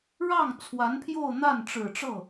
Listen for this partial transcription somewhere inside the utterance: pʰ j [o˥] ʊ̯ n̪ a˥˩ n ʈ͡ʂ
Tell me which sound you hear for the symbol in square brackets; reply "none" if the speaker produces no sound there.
o˥˧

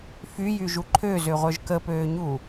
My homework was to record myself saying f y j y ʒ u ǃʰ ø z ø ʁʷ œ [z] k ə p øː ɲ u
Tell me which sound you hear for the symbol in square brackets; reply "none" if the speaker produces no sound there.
ʒ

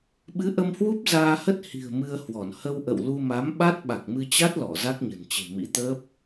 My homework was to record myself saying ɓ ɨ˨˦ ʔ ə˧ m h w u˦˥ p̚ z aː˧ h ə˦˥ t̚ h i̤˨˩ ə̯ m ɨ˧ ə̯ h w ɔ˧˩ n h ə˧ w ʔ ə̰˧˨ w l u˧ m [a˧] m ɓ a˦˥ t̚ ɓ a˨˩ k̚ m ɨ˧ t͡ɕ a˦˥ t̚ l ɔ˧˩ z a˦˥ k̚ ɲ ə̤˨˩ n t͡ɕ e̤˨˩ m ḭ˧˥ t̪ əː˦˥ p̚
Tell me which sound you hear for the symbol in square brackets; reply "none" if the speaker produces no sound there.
a˨˦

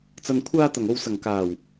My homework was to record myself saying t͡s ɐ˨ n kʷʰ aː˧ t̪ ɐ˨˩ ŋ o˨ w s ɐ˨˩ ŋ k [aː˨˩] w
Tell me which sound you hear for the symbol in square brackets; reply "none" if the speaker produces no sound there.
aː˨˩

